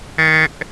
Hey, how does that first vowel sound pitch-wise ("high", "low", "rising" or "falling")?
high